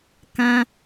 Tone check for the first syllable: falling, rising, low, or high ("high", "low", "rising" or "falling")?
high